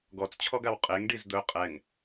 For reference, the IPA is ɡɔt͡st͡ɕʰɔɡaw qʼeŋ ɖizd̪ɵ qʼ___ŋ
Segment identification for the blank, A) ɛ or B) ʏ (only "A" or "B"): A